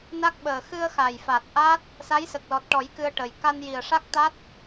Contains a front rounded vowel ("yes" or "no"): no